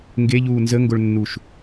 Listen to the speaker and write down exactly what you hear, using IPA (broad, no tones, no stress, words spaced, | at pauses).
ŋɡeʎuː nzəŋɡoɭnːuʃ